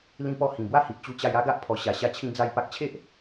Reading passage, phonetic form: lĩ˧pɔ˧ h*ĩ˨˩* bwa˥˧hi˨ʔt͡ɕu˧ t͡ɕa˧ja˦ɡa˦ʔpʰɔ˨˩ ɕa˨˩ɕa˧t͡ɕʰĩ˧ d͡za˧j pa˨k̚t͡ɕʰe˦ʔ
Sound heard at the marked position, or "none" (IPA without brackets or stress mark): ĩ˨˩